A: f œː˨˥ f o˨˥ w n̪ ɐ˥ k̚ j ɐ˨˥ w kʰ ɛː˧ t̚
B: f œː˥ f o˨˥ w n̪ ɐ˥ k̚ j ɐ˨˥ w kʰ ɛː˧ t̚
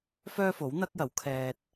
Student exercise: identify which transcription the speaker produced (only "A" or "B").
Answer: B